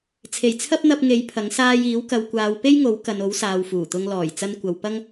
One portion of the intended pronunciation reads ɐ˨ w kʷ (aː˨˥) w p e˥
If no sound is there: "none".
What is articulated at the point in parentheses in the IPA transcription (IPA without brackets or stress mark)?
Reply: aː˨˧